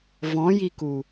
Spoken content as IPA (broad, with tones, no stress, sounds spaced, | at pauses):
v ɔ̃˨˦ j i˧ k u˨